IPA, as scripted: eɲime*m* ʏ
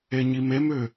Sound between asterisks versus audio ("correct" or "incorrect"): correct